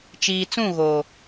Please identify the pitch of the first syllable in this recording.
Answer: low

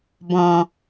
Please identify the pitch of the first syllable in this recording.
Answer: low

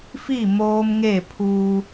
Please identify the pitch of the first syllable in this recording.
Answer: falling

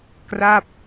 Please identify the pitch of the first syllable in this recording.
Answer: falling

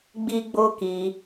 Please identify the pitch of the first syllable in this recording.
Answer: high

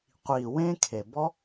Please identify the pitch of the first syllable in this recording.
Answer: low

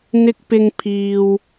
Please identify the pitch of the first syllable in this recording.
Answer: high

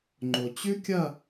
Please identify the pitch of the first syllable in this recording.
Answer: low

